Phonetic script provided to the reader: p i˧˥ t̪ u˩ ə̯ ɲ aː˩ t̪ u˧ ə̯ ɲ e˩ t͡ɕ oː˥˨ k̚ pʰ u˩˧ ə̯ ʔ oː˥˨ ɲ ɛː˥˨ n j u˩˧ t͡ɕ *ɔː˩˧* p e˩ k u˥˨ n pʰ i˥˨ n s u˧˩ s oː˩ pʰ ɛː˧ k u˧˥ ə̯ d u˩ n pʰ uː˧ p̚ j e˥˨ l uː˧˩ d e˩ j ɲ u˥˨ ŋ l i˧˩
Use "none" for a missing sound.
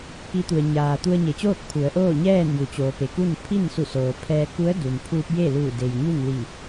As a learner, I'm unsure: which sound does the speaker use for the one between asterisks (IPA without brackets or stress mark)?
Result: oː˩˧